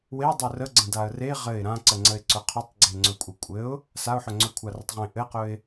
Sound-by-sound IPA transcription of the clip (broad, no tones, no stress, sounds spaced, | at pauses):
w e dˤ ɵ r ə ɡ͡ǀ ə̃ d a ə̯ r e ʁ ɘ ɪ̯ ɾ ã ǀ ə ŋ͡ǀ ə ɪ̯ ǀ ɵ qʰ ɵ tˤ ɡ͡ǀ e ŋ͡ǀ ɵ kʷʼ ɘ kʷʼ ɘ ʊ̯ | s a ʊ̯ ħ ɵ ŋ͡ǀ ɵ kʷʰ a r ə tˤ ʁ ẽ ʔ ɘ q ɵ ɪ̯